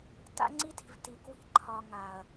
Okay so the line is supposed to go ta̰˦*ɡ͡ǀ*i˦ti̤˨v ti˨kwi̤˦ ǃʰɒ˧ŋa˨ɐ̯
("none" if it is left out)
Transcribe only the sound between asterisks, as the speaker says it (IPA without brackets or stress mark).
ŋ͡ǀ